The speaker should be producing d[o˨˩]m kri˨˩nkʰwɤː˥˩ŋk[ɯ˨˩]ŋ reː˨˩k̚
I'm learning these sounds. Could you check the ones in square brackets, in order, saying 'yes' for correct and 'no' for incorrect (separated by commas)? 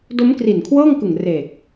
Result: no, yes